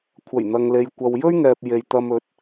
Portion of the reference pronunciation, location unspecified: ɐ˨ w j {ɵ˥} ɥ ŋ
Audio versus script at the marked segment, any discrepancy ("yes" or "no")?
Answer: no